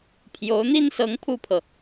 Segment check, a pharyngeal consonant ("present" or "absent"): absent